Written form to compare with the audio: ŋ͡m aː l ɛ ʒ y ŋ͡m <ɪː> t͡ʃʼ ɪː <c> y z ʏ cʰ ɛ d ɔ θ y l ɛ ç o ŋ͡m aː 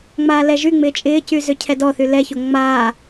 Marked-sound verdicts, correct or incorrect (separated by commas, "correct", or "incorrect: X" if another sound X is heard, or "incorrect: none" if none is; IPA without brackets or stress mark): correct, correct